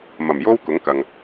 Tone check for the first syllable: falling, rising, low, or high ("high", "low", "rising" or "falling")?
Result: low